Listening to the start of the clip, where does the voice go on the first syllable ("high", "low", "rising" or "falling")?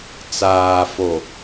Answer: low